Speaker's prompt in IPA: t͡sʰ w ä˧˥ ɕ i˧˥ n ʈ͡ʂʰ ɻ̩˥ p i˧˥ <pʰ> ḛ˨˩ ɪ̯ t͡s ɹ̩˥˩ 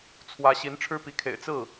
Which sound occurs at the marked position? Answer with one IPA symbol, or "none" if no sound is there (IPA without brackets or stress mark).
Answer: kʰ